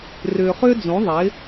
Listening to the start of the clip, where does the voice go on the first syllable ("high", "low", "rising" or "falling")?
low